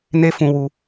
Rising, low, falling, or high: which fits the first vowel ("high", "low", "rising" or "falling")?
high